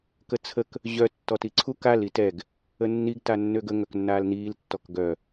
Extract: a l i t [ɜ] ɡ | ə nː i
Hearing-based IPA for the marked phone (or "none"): ɛ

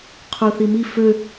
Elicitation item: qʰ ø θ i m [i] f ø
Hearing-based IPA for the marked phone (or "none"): i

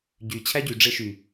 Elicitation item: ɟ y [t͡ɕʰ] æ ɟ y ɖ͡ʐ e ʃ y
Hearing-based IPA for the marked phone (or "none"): t͡ɕʰ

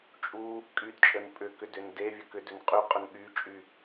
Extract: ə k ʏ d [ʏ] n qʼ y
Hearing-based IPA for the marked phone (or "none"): ʏ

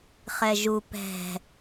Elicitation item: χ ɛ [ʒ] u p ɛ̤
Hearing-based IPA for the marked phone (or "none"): ʒ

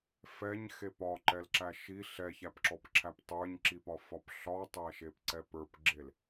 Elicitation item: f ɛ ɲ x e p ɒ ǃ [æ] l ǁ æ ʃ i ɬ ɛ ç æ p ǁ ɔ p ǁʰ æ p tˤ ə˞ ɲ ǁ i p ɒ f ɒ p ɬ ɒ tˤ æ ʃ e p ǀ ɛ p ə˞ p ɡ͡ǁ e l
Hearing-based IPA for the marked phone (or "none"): ɛ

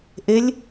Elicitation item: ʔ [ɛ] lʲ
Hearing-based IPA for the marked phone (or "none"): e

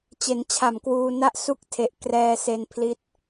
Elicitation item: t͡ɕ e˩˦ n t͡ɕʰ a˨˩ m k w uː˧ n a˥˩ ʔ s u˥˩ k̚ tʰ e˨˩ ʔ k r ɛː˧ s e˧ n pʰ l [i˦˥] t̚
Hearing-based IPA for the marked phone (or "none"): i˦˥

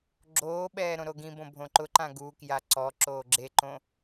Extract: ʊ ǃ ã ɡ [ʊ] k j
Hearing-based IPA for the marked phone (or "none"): u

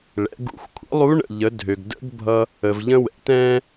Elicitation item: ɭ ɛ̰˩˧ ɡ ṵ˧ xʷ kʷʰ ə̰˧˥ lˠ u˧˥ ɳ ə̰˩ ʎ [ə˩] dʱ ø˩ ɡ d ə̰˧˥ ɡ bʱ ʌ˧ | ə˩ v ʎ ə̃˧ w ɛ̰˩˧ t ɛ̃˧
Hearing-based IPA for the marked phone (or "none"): ə˩˧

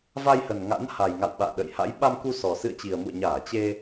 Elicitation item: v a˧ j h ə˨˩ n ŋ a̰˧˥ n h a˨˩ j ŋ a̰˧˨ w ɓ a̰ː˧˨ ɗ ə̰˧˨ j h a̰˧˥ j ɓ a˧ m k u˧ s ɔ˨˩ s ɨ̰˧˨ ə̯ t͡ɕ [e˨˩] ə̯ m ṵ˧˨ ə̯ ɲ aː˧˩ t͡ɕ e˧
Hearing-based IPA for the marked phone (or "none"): i˨˩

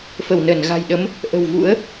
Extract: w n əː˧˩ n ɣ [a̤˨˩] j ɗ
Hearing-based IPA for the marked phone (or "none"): a̤˨˩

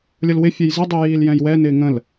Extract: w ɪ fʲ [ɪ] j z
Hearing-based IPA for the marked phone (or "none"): ɛ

